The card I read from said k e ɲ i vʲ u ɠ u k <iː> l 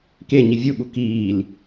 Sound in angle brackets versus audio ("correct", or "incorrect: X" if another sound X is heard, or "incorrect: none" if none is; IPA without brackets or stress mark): correct